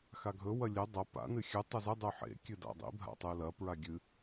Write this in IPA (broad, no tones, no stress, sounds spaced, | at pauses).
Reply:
x a ɡʱ ɵ w ɐ lʲ e dˤ ɐ p a̰ n ɨ xʲ ɨ tˤ ɵ z ɵ dˤ ʉ ħ ḛ kʲ ɨ d a̰ dˤ ḭ bʱ a̰ tˤ ɨ l ɐ p ɹ a ɡʲ ɨ